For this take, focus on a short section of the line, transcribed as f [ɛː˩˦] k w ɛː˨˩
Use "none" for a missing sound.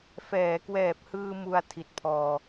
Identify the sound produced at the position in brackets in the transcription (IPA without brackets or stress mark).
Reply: ɛː˩˦